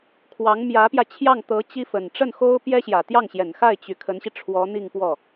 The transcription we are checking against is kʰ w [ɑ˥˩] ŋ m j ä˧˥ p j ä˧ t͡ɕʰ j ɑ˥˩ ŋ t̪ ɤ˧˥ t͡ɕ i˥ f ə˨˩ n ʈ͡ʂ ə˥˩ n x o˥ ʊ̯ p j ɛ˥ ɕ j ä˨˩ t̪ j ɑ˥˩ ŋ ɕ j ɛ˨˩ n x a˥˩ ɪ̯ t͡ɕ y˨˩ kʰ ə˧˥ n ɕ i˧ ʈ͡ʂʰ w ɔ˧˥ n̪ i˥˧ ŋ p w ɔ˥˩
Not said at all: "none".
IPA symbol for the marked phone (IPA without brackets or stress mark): ɑ˧˥